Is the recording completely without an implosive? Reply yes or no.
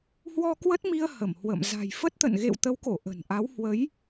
yes